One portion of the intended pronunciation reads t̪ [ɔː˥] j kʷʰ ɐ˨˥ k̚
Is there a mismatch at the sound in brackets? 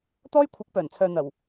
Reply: no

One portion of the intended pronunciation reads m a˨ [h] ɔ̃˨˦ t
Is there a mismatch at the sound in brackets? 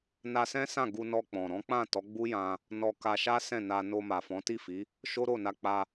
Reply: yes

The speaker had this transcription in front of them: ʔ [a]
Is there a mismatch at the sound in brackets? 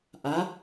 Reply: no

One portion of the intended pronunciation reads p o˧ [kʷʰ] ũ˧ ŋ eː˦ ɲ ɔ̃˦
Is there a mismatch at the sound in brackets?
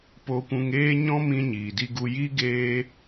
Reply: yes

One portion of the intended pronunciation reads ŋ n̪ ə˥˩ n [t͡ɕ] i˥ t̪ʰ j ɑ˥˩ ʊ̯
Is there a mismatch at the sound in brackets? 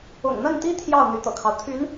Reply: yes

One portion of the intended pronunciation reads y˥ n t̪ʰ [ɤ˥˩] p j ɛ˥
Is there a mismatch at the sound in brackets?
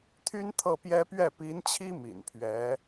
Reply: no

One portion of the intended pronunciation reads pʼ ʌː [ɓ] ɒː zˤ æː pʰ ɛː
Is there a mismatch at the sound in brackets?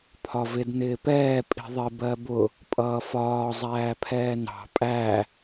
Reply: yes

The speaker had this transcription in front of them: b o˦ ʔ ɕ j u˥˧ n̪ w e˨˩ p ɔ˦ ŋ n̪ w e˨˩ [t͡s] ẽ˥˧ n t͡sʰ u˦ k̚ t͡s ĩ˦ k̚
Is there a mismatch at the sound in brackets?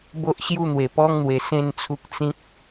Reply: yes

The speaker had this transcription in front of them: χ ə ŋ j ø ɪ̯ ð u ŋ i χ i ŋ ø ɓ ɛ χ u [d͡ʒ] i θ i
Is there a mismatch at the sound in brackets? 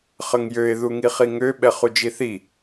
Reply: no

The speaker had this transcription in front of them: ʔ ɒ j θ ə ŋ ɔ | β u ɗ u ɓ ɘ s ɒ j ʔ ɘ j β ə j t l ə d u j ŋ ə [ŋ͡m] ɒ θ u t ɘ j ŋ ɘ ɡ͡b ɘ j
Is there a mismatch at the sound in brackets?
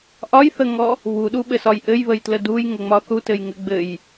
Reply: no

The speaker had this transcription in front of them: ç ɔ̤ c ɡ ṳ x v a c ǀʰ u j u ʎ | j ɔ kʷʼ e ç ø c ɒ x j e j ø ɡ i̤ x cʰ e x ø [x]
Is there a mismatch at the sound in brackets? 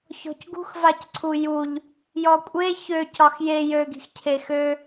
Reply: yes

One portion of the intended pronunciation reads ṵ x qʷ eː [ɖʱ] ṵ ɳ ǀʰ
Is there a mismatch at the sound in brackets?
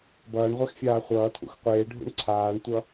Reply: no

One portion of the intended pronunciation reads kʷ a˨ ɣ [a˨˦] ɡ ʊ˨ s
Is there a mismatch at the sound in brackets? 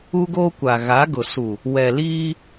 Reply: no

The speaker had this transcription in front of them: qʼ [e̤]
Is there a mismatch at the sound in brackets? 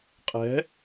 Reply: yes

